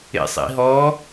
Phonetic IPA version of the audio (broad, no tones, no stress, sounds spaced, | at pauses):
ḛ sˤ ḭ ɦ ɔ